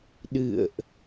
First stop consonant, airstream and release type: implosive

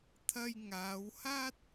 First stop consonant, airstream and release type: aspirated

